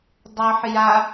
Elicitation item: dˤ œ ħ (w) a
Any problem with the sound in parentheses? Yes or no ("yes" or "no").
yes